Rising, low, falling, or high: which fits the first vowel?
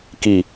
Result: low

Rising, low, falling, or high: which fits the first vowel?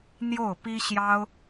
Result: falling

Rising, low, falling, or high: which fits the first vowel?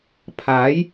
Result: rising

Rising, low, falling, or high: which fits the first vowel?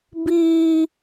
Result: high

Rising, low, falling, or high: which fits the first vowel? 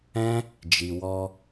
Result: high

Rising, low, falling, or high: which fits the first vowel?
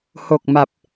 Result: low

